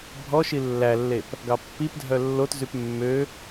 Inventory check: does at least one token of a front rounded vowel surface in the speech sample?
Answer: yes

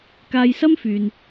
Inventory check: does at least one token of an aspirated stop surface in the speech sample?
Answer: no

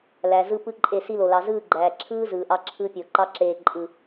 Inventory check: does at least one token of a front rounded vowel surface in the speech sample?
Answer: no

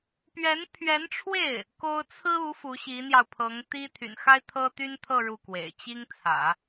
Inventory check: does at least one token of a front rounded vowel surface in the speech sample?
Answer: yes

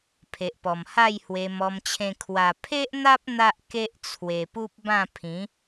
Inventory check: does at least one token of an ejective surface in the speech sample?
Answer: no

